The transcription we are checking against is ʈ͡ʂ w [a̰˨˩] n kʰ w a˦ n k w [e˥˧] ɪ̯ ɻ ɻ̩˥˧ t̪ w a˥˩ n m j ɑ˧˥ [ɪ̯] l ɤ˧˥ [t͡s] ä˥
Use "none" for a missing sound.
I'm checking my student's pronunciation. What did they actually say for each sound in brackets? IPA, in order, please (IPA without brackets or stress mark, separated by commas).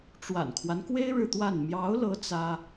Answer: a̰˨˩, e˥, ʊ̯, t͡s